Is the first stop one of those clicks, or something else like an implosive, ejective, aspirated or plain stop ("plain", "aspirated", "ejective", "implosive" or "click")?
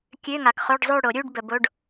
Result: plain